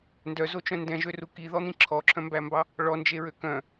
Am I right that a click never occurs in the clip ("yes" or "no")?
no